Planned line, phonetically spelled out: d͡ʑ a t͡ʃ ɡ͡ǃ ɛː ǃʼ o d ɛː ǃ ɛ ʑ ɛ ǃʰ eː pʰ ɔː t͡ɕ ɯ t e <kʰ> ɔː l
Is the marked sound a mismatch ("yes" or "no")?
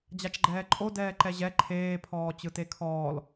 no